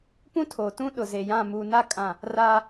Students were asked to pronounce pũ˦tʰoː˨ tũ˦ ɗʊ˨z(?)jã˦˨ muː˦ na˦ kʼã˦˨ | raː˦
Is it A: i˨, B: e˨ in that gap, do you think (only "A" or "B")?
B